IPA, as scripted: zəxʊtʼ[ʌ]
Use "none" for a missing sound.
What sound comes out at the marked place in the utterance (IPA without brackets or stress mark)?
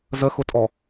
ɔ